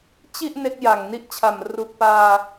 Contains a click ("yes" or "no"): no